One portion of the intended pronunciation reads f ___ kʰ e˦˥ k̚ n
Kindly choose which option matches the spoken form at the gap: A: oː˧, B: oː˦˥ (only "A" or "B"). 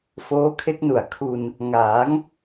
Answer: B